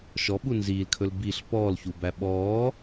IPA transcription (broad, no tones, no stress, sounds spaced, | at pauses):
ʃ ɔ ɓ u n z iː l kʰ ɵ l b i ɬ p ɔː l ç u b æ ɓ ɔː